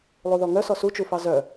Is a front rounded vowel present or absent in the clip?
present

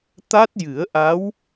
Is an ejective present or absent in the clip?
absent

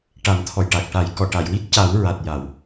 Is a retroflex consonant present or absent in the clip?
present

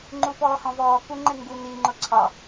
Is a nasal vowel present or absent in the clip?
present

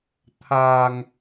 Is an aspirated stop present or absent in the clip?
present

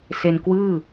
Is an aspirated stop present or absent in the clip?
absent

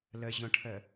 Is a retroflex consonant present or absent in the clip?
present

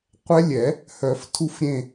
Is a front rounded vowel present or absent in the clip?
present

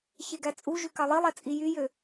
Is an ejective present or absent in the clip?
present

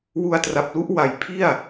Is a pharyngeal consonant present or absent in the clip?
absent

